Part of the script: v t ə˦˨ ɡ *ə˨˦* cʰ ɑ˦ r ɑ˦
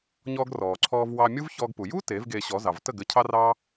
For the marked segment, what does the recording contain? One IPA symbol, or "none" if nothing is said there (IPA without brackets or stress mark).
ə˨˦